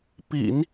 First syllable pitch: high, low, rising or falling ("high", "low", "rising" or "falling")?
low